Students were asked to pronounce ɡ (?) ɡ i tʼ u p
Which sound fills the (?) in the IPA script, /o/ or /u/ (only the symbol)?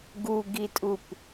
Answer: u